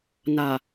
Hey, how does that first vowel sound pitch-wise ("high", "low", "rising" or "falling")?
low